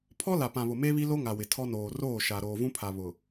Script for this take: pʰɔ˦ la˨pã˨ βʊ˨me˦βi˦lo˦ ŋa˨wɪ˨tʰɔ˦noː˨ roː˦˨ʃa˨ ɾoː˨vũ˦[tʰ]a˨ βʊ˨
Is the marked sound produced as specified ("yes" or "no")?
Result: no